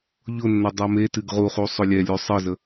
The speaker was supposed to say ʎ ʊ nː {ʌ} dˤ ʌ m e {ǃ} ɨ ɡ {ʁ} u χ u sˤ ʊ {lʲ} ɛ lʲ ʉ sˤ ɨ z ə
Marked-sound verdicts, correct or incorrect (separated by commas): correct, incorrect, correct, correct